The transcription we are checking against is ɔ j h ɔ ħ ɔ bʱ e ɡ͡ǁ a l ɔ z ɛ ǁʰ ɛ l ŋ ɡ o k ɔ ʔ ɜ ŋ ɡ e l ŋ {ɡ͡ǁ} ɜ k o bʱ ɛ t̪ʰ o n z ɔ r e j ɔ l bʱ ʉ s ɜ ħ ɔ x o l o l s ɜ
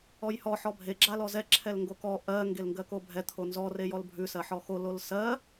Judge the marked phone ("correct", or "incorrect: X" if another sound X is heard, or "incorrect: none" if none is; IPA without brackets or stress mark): incorrect: ɡ